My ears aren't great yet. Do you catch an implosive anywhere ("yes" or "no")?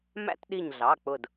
yes